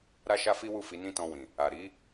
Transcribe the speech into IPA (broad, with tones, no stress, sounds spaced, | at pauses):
ɾ a˦ ʃ a˦ f i˦ w u˦˨ f i˨˦ n ĩ˦˨ t ɔ̃˧ w ĩ˨ | a˨ ɾ i˨˦